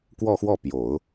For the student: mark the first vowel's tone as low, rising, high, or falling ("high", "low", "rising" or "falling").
falling